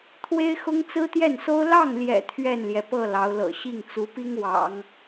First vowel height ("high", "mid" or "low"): mid